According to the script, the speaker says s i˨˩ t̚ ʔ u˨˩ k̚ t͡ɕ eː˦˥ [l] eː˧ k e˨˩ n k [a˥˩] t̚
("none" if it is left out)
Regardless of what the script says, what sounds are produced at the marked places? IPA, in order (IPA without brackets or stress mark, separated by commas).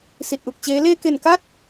l, a˦˥